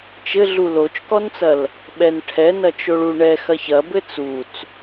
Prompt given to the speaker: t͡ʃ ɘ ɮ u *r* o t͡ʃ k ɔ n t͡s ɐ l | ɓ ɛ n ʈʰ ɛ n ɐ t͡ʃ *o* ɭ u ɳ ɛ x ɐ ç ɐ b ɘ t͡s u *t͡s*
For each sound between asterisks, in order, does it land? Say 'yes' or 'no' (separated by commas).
no, yes, yes